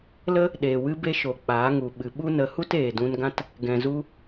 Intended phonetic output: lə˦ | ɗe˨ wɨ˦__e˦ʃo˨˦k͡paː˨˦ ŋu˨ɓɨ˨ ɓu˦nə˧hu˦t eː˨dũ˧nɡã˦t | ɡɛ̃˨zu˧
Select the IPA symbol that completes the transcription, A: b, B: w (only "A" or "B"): A